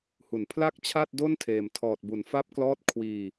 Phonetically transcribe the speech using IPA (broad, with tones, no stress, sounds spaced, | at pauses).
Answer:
h u˨˩ n pʰ l a˥˩ k̚ t͡ɕʰ a˥˩ t̚ d o˥˩ n tʰ eː˨˩ m tʰ ɔː˨˩ t̚ b u˩˦ n f a˦˥ p̚ k l ɔː˦˥ t̚ kʰ w iː˧